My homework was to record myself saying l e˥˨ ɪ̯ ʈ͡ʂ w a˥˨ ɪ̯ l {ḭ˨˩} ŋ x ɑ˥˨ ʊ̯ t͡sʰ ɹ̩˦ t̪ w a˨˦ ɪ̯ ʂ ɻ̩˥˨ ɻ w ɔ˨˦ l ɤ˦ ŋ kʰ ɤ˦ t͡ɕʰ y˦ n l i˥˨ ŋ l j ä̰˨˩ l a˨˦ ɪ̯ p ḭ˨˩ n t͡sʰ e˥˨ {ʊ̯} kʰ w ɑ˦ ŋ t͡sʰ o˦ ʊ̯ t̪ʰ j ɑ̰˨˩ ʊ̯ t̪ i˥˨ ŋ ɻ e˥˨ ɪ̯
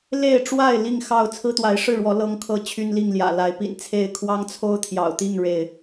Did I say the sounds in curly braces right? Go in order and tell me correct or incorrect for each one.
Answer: incorrect: i˥˨, incorrect: ɪ̯

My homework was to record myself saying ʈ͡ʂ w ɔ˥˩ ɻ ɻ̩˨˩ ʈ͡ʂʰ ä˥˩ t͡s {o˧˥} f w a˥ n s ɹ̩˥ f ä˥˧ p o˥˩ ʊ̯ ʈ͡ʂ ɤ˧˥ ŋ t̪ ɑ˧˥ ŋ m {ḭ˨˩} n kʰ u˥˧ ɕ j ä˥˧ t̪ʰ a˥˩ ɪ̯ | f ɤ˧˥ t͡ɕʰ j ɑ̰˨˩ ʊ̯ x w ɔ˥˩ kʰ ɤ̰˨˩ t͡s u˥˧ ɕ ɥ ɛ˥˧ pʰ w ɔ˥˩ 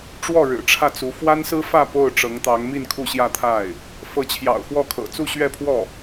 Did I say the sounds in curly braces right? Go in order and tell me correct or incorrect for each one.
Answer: incorrect: u˧˥, incorrect: i˥˧

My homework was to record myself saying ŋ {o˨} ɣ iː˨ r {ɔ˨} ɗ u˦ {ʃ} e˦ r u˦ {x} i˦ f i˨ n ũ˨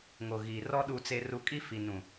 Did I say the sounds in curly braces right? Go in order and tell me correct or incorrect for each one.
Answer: correct, incorrect: ɔ˦, incorrect: t͡s, incorrect: kʼ

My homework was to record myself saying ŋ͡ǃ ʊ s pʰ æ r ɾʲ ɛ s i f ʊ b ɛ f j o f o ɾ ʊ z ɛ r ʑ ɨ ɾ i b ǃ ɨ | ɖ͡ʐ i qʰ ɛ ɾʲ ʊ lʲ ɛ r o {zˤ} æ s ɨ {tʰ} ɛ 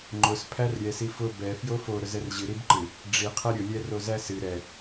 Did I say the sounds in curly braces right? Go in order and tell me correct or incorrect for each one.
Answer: incorrect: z, incorrect: ɾ

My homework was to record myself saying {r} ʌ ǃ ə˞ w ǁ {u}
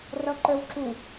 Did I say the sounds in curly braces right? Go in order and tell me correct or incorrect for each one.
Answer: correct, correct

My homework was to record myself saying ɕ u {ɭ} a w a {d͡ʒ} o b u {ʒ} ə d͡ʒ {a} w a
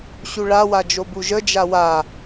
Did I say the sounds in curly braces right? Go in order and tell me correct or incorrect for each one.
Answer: correct, correct, correct, correct

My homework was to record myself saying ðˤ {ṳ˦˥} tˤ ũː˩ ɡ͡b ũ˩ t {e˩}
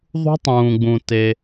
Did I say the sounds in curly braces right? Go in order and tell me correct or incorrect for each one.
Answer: correct, correct

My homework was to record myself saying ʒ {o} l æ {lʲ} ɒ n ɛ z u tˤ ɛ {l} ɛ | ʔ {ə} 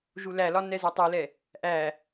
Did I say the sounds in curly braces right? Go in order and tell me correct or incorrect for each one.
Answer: incorrect: u, incorrect: l, correct, incorrect: æ

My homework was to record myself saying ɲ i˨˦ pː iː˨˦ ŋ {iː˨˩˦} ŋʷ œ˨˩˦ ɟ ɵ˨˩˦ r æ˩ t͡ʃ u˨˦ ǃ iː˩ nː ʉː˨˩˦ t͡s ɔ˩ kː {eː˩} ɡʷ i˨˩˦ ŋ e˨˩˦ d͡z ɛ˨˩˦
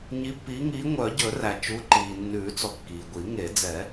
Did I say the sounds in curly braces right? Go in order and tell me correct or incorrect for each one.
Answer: incorrect: iː˨˦, incorrect: iː˩

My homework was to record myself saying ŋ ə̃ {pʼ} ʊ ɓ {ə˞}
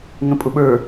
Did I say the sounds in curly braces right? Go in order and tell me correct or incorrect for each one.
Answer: correct, correct

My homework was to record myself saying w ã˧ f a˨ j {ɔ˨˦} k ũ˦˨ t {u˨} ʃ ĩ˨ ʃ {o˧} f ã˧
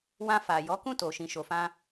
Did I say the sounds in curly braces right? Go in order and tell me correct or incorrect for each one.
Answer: correct, incorrect: o˨, incorrect: o˨

